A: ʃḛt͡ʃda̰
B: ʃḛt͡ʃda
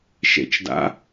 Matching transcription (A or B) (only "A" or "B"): A